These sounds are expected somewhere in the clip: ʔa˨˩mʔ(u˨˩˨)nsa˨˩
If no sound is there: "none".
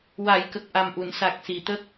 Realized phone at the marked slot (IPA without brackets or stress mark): u˨˩˨